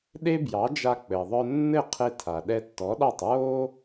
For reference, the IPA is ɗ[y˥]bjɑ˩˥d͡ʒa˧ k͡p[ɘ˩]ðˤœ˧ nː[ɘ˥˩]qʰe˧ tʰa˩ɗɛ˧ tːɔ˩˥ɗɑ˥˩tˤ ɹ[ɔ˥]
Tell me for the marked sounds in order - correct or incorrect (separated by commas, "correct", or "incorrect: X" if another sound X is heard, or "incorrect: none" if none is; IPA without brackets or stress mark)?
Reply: incorrect: e˥, correct, correct, incorrect: o˥